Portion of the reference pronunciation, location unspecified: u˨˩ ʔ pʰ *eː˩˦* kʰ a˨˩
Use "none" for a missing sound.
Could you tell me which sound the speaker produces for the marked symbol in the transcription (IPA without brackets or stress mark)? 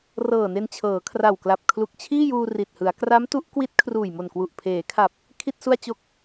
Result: eː˩˦